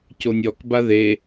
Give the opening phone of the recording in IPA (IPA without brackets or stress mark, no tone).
c